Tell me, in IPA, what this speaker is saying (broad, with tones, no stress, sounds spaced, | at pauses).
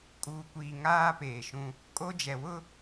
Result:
kʼ uː˨ kʷ iː˨ ŋ aː˦ p eː˨ ʃ ũ˦ | kʼ o˦ d͡ʒ ɛ˨ w ʊ˦